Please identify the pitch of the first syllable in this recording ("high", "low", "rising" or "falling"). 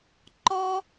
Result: high